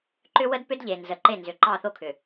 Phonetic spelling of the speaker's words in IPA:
ǃ ʏ˦ w ə˦ d p ʏ˦ d ʎ e˨ n z ə˨˦ ǃ e˦˨ n z ʏ˨ ǃ ɑ˦˨ θ o˦ kʰ ʏ˨

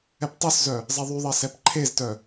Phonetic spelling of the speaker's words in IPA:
ɛ p tˤ œ s z œ | zˤ ɛ ðˤ y ðˤ ɜ s ɛ p ǃʰ e z t œ

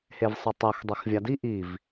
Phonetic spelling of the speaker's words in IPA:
h e v sˤ ɯ tˤ ɛ x dˤ ɛ x vʲ a d i ʔ i v

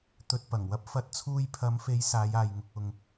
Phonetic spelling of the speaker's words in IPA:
t̪ ɵ˧ t̚ p ɐ˨˩ ŋ w ɐ˥ p̚ f ɐ˨˥ t̚ t͡sʰ uː˧ j pʰ ɐ˨˧ m f e˨˧ j s aː˨˧ j aː˨ j ŋ ʊ˨ k̚ ʊ˨ ŋ

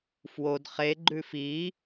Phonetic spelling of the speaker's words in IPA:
f w o d χ e ɡ͡ǃ ʉ f i

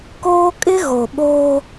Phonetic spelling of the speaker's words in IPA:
k oː˦ kʼ ɪ˦ ɣ o˨ ɓ oː˦

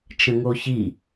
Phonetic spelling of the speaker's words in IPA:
t͡ʃ ə̃ ŋ o ç i

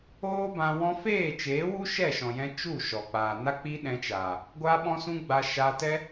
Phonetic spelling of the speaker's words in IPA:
oː˦ b ã˧ w ɔ̃˧ f eː˦˨ t͡ʃ eː˨˦ w u˦ ʃ ɛ˦˨ ʃ ɔ̃˨ j ɛ̃˧ t͡ʃ u˦˨ ʃ ɔ˨ k͡p aː˨ n a˦ k͡p i˦ ɗ ɛ̃˧ t͡ʃ aː˨ | ɡʷ aː˦ ɓ ɔ̃˦ s ũ˦ ɡ͡b a˧ ʃ a˧ t ɛ˦

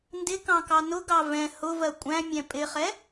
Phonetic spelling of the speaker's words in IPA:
n d ɪ k ɑ̃ k ɑ n ʊ ɡ ɑ v ɛ̃ h ʊ v ɜ kʷʼ æ̃ mʲ ɛ̃ pʼ ɪ χ ɛ

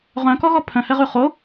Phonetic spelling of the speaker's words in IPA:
ʁ œ̃ k ɔ ɣ ɔ pʰ œ̃ h ɛ ʁ ʉ χ o

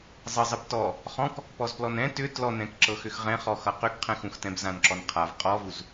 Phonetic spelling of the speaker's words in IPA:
zˤ ɘ zˤ ɘ b t ɔ | χ ɔ̃ k | p ɔ z p l ɔ n ɛ̃ t ʏ t l ɔ n ɛ̃ k ǁ ɤ x ʏ x ʁ ɛ̃ χ ɔ x ʌ q ʏ k qʰ ɛ̃ x ũ x t ɛ̃ b z ã n ǁ ɔ n qʰ a v qʼ ɔ v u z

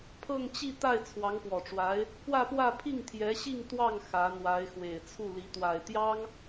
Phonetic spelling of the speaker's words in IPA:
pʰ ɤ˥˧ ŋ t͡ɕ i˥˧ t̪ a˥˩ ɪ̯ t͡sʰ w ɑ˧˥ ŋ p w ɔ˨˩ ʈ͡ʂ w a˧˥ ɪ̯ | p w ä˥˧ p w ä˥˧ pʰ i˥˩ ŋ t̪ʰ j ɛ˧˥ ɕ i˥˧ ŋ t̪ w ɑ˥˩ ŋ x ä˧˥ n̪ w a˧˥ ɪ̯ x w e˨˩ ɪ̯ t͡sʰ u˥˩ l i˧˥ t̪ w a˨˩ ɪ̯ t̪ j ɑ˥ ŋ

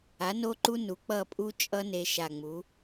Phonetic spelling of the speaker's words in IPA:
a˩˥ n o˦˥ ǃ u˦˥ n u˩˥ k͡p ʌ˦˨ pʼ u˦˥ t͡ʃʼ ʌ˦˥ n e˦˥ ʃ a˦˨ ŋ͡m u˩˥

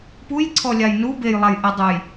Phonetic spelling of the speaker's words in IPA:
p u j ǀʰ ɔ lʲ a j n u b e j lˠ a j ʔ ɛ dˤ u j

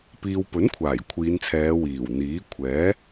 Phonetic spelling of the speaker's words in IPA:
p iː˨ w p ɵ˨˥ n kʷʰ aː˨˩ j kʷʰ iː˨˧ n t͡sʰ ɛː˨˧ w iː˨˩ w n̪ iː˨˥ kʷʰ ɛː˨˥

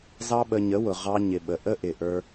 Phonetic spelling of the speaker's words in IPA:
z ɑ˦ ɓ ə˧ ɲ ə˨˦ w ʊ˨ ʁ ɑ˧ ɲ ɪ˨ ɓ ə˨ ʔ ə˦ ʔ ɪ˨ ʔ ə˞˧

